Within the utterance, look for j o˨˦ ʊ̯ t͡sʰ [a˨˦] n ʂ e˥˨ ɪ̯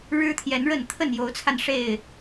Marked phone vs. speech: incorrect: a˧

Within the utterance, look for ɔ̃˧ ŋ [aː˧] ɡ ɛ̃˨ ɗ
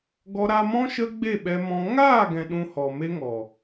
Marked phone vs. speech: incorrect: aː˦˨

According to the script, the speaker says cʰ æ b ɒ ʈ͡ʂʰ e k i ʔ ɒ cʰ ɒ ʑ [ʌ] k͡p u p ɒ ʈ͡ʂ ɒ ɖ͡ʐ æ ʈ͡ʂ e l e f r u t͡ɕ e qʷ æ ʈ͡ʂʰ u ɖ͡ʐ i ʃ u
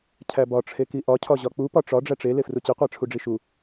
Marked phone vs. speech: incorrect: ɒ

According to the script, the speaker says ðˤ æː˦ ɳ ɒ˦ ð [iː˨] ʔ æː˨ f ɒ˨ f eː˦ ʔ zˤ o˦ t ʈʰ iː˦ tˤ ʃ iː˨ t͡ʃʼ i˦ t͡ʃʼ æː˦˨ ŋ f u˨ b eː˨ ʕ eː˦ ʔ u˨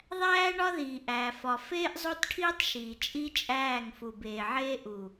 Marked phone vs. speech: correct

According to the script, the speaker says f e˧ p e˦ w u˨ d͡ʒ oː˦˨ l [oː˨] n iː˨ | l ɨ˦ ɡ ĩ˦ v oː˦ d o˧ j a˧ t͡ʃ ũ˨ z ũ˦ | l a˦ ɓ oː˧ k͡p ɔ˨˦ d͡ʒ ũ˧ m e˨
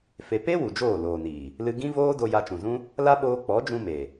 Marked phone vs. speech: correct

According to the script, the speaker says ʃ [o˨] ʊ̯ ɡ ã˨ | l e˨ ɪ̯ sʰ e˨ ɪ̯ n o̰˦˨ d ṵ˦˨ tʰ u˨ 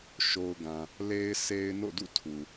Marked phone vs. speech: correct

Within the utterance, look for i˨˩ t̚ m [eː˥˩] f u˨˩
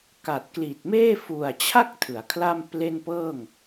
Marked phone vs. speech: correct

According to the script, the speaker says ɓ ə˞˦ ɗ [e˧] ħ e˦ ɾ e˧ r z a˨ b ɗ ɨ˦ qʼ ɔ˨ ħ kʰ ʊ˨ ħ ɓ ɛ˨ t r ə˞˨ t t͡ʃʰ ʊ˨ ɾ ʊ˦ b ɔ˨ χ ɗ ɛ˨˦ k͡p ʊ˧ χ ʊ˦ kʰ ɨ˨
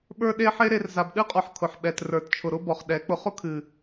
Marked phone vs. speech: incorrect: e˦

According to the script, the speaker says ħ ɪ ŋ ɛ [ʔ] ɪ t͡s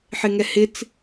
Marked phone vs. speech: incorrect: h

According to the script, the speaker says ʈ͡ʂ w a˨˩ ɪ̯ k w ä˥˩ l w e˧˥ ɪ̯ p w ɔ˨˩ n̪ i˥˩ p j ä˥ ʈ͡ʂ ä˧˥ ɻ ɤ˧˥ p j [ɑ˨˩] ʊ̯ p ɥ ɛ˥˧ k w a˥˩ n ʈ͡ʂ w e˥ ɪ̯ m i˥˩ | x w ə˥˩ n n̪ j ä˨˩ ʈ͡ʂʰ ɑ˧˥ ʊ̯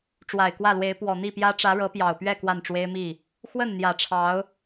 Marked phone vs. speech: correct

